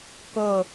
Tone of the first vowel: falling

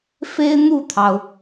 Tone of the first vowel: high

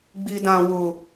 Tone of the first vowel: high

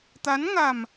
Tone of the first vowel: rising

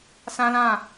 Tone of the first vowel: high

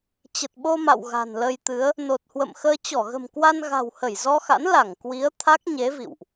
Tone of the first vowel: low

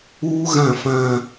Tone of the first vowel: high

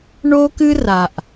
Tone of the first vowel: high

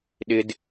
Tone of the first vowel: high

